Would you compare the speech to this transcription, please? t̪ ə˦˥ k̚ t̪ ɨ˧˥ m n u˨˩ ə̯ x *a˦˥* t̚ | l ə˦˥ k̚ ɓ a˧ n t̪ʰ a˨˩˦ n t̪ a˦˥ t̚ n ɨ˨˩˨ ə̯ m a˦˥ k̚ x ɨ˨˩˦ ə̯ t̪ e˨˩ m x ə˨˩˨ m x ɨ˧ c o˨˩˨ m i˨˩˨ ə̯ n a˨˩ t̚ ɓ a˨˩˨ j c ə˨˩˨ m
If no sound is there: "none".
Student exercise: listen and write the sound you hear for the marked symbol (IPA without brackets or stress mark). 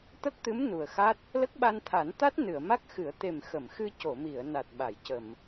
a˦˥